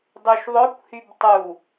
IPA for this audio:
dˤuʃðˤœkʷhyb tˤu

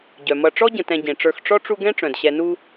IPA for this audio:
ɟœ˩mʌ˨ ʈ͡ʂɔ˥ ɟə̃˨tɛ̃˨ ɟẽ˩ʈ͡ʂə˞˨x ʈ͡ʂɔ˥ʈ͡ʂu˦ ɡɛ̃˥ʈ͡ʂœ̃˩dɕɛ˨ nu˦

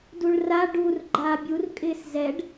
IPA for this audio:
duɭra ɖur ɡ͡ǃaːbʲur kʼɪːszɛɖ

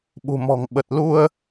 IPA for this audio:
ɓṳ˨˩mɔ̤˨˩ŋ ɓə˨˩t̚lu˧ə̯

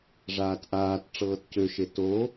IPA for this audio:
ʐaːtʔaːt ʈ͡ʂɤːtcøʃe to

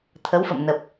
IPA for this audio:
t̪ʰə˨˦wfə̰˧˨mnə˨˩p̚

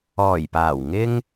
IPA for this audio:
ɔː˨˩jpaː˨˩w ŋɪ˥ŋ

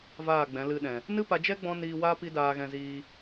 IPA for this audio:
vaː˦˨ɡ͡bɛ̃˨˦lɨ˧ɗɛ̃˨ | nɨ˦pa˧d͡ʒɛ˦ ɡ͡bɔ̃˦niː˧waː˦ pi˦daː˧ɣɛ̃˧ziː˧

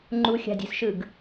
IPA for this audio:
ŋ͡ǃuxʲa̤dʲe̤sʃɯɡ

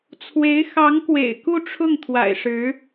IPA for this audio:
t͡sʰwe˧˥ɪ̯ xɑ˧˥ŋkwḛ˨˩ɪ̯ ku˥˧ʈ͡ʂʰʊ˥˩ŋ t̪ʰwa̰˨˩ɪ̯ʂɻ̩˧˥

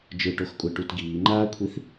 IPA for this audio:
d͡ʒɯʈoxkʷʼɛʈut ɡiːŋ͡ǃaːkʷʰiθ

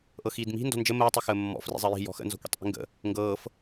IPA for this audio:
ʔɤxiːdmi̤ ndɔ̤nd͡ʒə məː tˤixəːmːɔ̰ frḭzˤɜji̤ jɔ̤xə̰ nzɔ̤kʷḭtˤʔi̤ŋɡə̰ | ŋɡɤːf

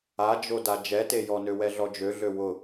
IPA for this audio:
ad͡ʒoda d͡ʒɛtejɔnø wɛɮɔd͡ʒøɮø wʊ

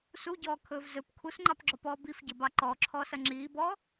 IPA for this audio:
suɟɔːkʰɵːv zɵp kʰusŋ͡ǃɑpɡ͡ǁɔpɔː bifɟəbɑ ǃɔǁʰɔːsɐ ŋ͡ǁiːbɔː

